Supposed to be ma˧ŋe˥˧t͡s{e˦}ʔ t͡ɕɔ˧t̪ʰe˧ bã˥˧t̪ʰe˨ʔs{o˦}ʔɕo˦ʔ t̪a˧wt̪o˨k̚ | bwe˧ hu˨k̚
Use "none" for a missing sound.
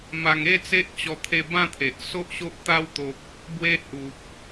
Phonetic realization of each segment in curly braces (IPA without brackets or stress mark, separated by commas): e˦, o˦